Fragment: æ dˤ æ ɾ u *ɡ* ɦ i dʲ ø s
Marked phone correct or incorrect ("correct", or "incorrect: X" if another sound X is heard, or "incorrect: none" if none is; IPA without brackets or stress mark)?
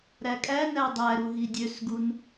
incorrect: none